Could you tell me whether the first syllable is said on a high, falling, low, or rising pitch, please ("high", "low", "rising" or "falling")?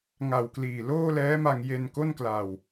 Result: low